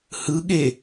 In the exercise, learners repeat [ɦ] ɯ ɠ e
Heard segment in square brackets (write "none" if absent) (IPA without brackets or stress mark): h